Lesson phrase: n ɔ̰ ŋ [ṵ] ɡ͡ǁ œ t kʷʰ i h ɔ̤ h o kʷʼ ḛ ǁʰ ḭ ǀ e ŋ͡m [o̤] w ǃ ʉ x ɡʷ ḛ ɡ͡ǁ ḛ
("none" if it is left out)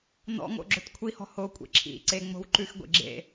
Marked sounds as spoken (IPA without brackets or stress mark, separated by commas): o̰, o̤